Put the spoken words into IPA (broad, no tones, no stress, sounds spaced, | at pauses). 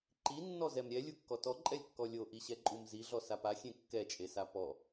ǃ i nː ɔ z ɛ m ɾʲ ɛ lʲ u kː ɔ t ɔ ǃʼ ɛ lʲ kː ɔ lʲ o ʔ i ɕ ɛ ǃʼ u m z i ɮ ɔ s a p a xʲ ẽ kː ɛ t͡ʃʼ e s a p ɔ